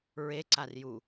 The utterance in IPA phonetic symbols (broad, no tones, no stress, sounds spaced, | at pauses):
ɹ e ǀ a r j u